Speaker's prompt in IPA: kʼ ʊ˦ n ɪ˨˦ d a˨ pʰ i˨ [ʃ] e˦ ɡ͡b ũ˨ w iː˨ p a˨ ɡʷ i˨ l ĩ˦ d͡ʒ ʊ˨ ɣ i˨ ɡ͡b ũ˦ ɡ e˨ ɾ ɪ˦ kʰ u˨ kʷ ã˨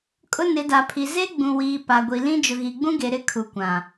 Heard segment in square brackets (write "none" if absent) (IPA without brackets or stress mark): z